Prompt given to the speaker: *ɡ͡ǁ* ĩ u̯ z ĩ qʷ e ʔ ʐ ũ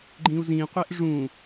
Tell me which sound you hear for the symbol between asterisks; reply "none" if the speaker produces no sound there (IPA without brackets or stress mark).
ɡ͡ǃ